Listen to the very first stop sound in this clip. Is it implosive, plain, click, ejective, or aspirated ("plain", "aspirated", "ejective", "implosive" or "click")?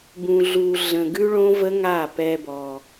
plain